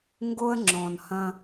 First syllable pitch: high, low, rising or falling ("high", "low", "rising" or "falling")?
high